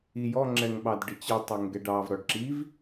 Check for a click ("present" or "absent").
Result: present